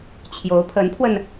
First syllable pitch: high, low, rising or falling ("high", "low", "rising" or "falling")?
rising